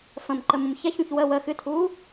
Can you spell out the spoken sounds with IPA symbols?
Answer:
f ə̃ m ǃ ə m ũ m ç ɛ ç ũ ç w ə w ə x ɨ tʰ uː

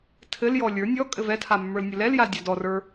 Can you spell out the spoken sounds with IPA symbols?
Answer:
tʰ ɘ l j ɔ lʲ ə˞ nʲ ɔ kʼ ɘ v ɛ tʰ a mː ə˞ l nʲ ɘ l ɛ l j a l dʲ a d ɔ r ə˞

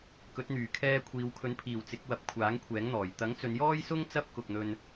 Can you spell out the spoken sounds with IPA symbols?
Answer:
k ɵ˨˥ t̚ n̪ yː˨˩ kʰ ɛː˧ kʷʰ iː˨˧ w kʰ ɵ˨˥ n pʰ iː˨˩ w t͡s ɪ˨˥ k̚ w ɐ˨˥ p̚ kʷʰ aː˨˥ ŋ kʷʰ ɛː˨˥ ŋ n̪ ɔː˨˩ j t̪ ɐ˨˥ ŋ t͡s ɵ˨˧ n j ɔː˥ j s ʊ˥ ŋ t͡s ɐ˥ p̚ k ʊ˨ k̚ n̪ ɵ˧ n

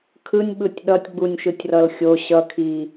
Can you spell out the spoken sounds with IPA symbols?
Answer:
kʰ ɯ nʲ ɓ ɯ tʲ ɗ ʌ tʲ ɡ͡b u nʲ ʃ ɯ tʲ r ʌ l xʲ o ɕ ʌ kʰ i

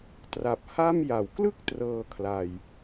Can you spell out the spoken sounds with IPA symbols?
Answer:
t r a˨˩ p̚ h a˥˩ m j a˩˦ w k l ɯ˥˩ k̚ t r ɤː˧ kʰ l a˨˩ j

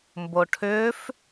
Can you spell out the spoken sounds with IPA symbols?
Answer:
m b o ʈʰ ʏː f

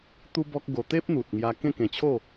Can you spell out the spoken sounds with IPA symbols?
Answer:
t̪ u˦ b ɔ˦ k̚ ɡ o˧ t̪ e˦ p̚ n̪ u˨ t̚ ŋ j a˧ k ẽ˥˧ k ẽ˧ t͡ɕʰ o˥˧

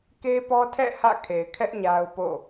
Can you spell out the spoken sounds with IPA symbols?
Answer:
k e˦ p ɔ˦ tʰ ɛ̰˦˨ h ä̰˦˨ kʰ e˨ ɪ̯ kʰ ɛ˦ ʔ ɲ a˦ ʊ̯ p o̰˦˨

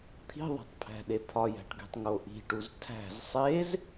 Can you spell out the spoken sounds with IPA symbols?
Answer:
t̪ʰ i̤ ðˤ æ̤ tˤ pʰ æ̤ ɗ e pʰ ɒ j æ̤ ʈ ɡ e̤ tˤ ŋ o ʔ i̤ ʈ u z tʰ æ̤ z sˤ e z

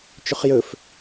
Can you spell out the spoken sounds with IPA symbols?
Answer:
t͡ʃ ɵ χ j ɵ f

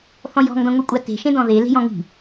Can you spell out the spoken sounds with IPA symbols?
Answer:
θ ɔ̃ j ɔ̤ ŋ d ɔ̃ ŋʷ i kʷʼ a t e̤ ʃ ẽ d ɔ̃ ð e l e̤ j ɔ̃ ŋ i̤

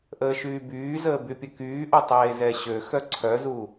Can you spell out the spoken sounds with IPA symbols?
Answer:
ʔ əː ʃ yː b yː z əː b y pʲ ə k yː ʔ o tˤ eː z ɛ ɕ ø x œ ǀʰ œ z u

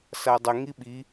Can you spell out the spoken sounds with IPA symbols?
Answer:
s a dˤ ə ŋ i ɓ i

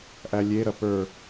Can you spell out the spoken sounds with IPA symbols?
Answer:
ʔ æ lʲ e ɾ ɐ p ə˞

